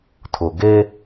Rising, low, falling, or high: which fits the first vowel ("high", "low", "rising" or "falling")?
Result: low